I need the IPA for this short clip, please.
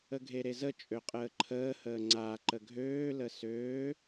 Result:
ə ɡʱ e ɾ e z ə t͡ʃʼ ø qʼ əː ǃʰ əː h əː ŋ͡ǀ a ǃ ə ɡʱ øː l ə s øː

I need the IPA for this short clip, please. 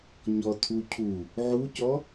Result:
ɲ ɔ tʰ u cʰ u | ʕ u c ɔ

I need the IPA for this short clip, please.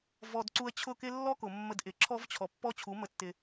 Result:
v ɔ˨ d ǀ u˧ ə̯ t͡ɕʰ ʊ˦˨ k ɪ˦ lː ɔ˦ k ʊ˨ mː ə˧ d ʔ ɪ˨ ǁʰ ɔ˦ v t͡ɕʰ ɔ˨ pː ɔ˦ t͡ɕʰ u˨˦ m ə˧ tː ɪ˧

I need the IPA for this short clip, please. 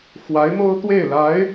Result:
x w a˧˥ ɪ̯ m o˥ ʊ̯ t̪ w e˥˩ ɪ̯ l a˧˥ ɪ̯

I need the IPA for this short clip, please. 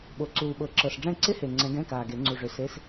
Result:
ɓ o˨˩ ǀ uː˨˩ ɓ ɤ˨˩˦ ǁ ɤ˨˩ s ɖ͡ʐ ɛ̃˥˨ ǀ ɪ˥ h e˨˩ ŋ͡ǀ ɛ̃˨˦ ɡ ɛ̃˧˥˧ k aː˨˩ ɡ e˨˩˦ ŋ͡ǀ u˨˩ ʐ ʏ˨˩˦ s e˧˥˧ s

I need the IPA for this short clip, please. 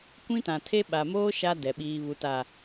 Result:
kʷ ĩ˦ t ã˨ tʰ e˦ ɓ a˨ m oː˦ ʃ a˦ d ɛ˨ ɓ iː˨ β u˨ t a˨

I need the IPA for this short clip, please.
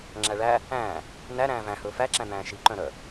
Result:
ŋ͡ǁ æ ɭ æ | æ̃ː | n æ ɾ æ̃ː v æ̃ h ɵː f æ ǁ æ̃ n̪ æ̃ː ʃ i ǃ œ̃ ɾ œ

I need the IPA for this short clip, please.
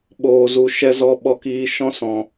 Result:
ɓ oː˧ z u˧ ʃ ɛ˦ z ɔ˧ ɓ ɔ˧ k iː˧ ʃ ɔ̃˧ s ɔ̃˨

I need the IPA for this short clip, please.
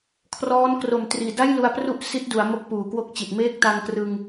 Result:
kʰ r ɔː˦˥ n k r o˨˩ m t r iː˨˩ d a˥˩ j l u˧ a̯ p r u˥˩ ʔ s i˦˥ t̚ d u˩˦ a̯ m o˦˥ k̚ p uː˨˩ k w o˥˩ k̚ t͡ɕ i˨˩ t̚ m eː˦˥ k̚ t a˧ ŋ k r ɯ˧ ŋ

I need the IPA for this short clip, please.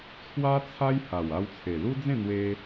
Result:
t͡sʰ w a˦ t͡sʰ a˦ j h a˨˩ w a˧ w t͡sʰ e˨˩ l u˦ d͡z ẽ˥˧ n̪ w e˧

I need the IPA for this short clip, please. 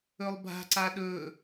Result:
ɵ lˠ bʱ a̤ ǀ a ɗ ɵ

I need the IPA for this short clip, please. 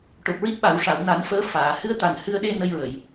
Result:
ʈ o˨˩ p̚ ɹ i˦˥ t̚ ɓ a˨˩˦ w ʂ a˨˩˨ w n a˨˩˦ n f əː˧˥ f aː˨˩˨ h ɨ˧˥ ə̯ t̪ a˨˩ n h ɨ˧ ə̯ ɗ e˧ n ə˧ j ɹ ə˨˩˨ j

